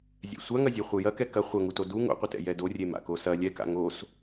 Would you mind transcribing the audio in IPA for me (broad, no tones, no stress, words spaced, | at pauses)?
zʲɛ̰sʷaŋɐzʲe χʷejɐ kɛkɐ χʷɐŋuto du ŋo̰qʷɐtɛ̰ jɛdorʲema̰ kosɐ lʲɛka̰ ŋos